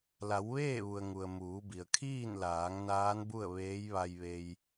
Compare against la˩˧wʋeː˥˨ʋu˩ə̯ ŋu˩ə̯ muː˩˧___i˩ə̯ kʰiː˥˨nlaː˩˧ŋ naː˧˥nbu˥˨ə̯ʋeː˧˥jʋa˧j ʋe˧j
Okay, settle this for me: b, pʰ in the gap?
b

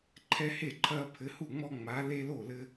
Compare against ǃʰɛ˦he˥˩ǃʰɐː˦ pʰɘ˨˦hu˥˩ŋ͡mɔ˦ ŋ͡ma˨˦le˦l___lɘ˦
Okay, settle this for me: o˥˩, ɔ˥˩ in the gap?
o˥˩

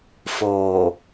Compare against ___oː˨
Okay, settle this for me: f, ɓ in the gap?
f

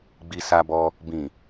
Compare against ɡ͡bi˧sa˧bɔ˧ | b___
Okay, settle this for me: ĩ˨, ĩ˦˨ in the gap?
ĩ˨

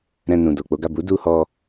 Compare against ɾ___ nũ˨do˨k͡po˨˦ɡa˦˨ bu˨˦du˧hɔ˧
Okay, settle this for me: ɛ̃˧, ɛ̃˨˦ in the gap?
ɛ̃˧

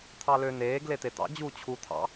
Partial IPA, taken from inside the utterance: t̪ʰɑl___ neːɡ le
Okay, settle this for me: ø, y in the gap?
ø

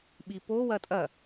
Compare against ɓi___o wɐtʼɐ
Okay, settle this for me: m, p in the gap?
p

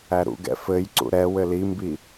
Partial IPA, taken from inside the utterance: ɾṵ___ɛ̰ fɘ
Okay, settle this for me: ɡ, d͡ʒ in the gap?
ɡ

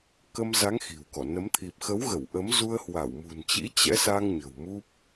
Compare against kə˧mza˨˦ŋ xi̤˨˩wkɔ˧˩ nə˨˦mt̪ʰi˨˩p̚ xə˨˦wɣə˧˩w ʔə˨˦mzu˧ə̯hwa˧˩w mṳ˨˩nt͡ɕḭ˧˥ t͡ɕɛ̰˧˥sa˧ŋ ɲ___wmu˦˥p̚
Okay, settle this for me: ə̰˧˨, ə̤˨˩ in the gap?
ə̤˨˩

